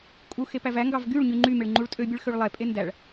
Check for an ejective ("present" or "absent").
present